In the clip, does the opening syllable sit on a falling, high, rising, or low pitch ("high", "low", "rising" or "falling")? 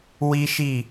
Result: high